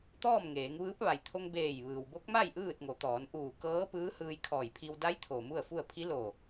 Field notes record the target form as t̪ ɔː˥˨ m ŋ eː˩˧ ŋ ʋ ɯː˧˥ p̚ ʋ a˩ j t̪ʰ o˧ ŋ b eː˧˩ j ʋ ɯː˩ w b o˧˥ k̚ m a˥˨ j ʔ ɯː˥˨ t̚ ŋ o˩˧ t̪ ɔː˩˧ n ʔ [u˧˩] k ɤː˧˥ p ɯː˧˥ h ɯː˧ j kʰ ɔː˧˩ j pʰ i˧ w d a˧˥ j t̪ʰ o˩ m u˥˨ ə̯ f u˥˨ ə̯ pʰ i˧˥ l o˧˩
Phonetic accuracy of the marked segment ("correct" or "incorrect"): incorrect